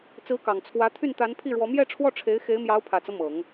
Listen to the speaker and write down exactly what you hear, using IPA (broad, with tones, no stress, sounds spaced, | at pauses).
t͡s ɹ̩˧˥ k ɑ˨˩ ŋ t͡sʰ w ä˧˥ t̪ʰ y˥˩ n t̪ a˧˥ n pʰ i˥˩ ɻ w ɔ˧˥ m j ɛ˥˧ ʈ͡ʂʰ w ɔ˥˩ ʈ͡ʂʰ e˧˥ ɪ̯ x e˧˥ ɪ̯ m j ɑ˧˥ ʊ̯ pʰ ä˨˩ t͡s ɤ˦ m ɤ˨˩˦ ŋ